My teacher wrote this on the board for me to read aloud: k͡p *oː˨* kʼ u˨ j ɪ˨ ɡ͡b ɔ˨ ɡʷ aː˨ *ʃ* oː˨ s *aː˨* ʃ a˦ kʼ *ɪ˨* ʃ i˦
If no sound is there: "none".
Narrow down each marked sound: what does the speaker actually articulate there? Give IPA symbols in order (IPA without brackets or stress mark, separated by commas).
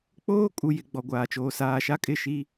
oː˦, t͡ʃ, aː˨, ɪ˦˨